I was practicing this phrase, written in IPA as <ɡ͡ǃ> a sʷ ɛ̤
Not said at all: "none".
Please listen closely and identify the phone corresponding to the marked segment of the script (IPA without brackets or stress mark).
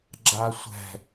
ɡ͡ǁ